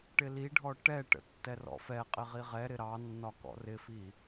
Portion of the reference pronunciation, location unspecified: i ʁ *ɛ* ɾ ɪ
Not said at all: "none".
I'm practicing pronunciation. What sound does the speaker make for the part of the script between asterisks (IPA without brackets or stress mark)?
ɛ